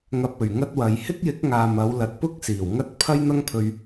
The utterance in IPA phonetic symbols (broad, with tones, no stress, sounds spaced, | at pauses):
ŋ ɐ˧ p̚ ɵ˨˩ ɥ ŋ ɐ˥ t̚ w ɐ˨˧ j h ɪ˥ k̚ j ɪ˨˥ k̚ ŋ aː˨ m ɐ˨˧ w l ɐ˨ t̚ p ʊ˥ k̚ s iː˨˩ w ŋ ɐ˥ t̚ pʰ ɐ˥ j n̪ ɐ˥ ŋ pʰ ɵ˧ ɥ